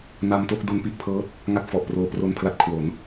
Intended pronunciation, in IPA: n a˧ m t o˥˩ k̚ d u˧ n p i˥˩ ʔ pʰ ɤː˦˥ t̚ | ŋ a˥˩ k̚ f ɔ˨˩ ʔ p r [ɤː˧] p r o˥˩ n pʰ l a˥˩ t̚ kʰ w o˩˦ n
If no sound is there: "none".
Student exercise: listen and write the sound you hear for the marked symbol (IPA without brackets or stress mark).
oː˧